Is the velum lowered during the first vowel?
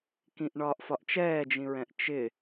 yes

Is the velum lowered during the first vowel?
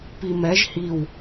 no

